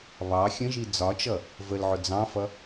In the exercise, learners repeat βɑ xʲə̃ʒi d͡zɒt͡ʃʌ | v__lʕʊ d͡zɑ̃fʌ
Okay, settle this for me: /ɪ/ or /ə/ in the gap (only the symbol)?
ə